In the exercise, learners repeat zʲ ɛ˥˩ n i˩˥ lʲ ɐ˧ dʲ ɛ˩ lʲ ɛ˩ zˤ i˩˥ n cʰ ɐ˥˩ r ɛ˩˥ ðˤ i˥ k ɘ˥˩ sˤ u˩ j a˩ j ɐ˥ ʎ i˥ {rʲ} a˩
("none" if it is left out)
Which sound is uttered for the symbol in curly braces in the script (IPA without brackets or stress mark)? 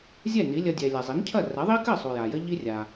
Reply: rʲ